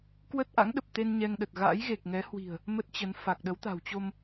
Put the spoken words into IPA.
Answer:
kwə˦˥t̚ʔa̰˧˥ŋɗə˨˩p̚t̪e˧n ɲɛ˧ŋɗə˨˩t̚ ɣa̰˧˥jɣe˨˩k̚ ŋɛ˨˦hwi̤˨˩ə̯ | mə˦˥t̚t͡ɕə˨˦n fa˨˩k̚ɗə˨˦w t̪a̤˨˩wt͡ɕo˧m

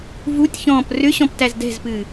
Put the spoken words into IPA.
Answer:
vutʲçɔ̃ːp rʏɕɔ̃ptæz dɛ̤zpɨː

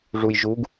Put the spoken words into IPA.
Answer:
ʐujʒuɡ

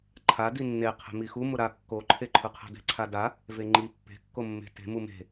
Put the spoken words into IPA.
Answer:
ǃʰa dinːeqʰe̤ mixumʊ ɾa kːoǃʰeǃʰʊ qʰɛ̤dɛ̤ǀʰada | veŋ͡ǃi pːe̤kːo mːe̤te̤ mume̤

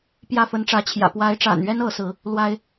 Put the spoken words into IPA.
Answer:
pjä˥˩ fə˧˥nʈ͡ʂä˧˥t͡ɕʰjä̰˨˩ pwa˧˥ɪ̯ʈ͡ʂa̰˨˩nɥɛ˥n ɤ˧˥sɹ̩˧˥ | lwa˥ɪ̯

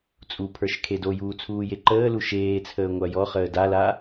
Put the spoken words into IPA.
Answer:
t͡sʼupʰə˞ʃ kʰedojuː t͡sʰuːjeǃəːlu ʃeːt͡sʰəː ŋʷajɔχəː dala

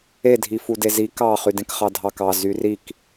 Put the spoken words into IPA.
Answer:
e dʱifudezi kɑ χydẽkχɑdʱɑk ɑ zyrik

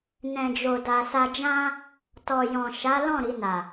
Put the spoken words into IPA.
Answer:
nɛ̃˨d͡ʒo˨da˨ sa˧d͡ʒã˦ | tɔ˨ jɔ̃˨ ʃa˨˦lɔ̃˦˨ ɾi˧na˨

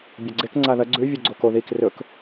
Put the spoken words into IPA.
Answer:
bʲɐɡ͡ǀek ŋ͡ǀaðɐ ɡ͡ǀʉ vʲoɡ͡ǀoko ðik rɵk

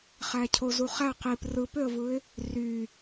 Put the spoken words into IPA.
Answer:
χæcʰozuχæ qip rɯpøə̯vɯɪ̯ | ry

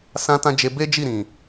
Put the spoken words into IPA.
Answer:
sã˦tã˦ d͡ʒe˧be˦d͡ʒi˦˨ɾĩ˨

